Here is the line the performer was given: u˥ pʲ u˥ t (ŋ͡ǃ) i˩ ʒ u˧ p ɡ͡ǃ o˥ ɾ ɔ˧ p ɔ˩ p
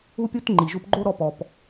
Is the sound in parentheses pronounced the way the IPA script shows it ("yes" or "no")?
yes